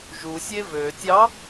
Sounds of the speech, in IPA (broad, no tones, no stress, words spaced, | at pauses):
ʒusʲe vø tʲɑ